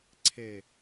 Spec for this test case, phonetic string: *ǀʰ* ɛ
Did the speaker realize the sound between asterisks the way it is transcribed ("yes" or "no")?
yes